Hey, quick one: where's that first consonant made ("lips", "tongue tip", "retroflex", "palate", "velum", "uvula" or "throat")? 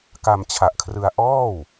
velum